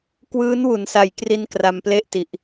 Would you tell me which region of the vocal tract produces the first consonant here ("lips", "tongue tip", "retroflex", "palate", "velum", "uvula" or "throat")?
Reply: velum